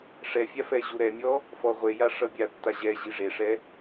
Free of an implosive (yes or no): yes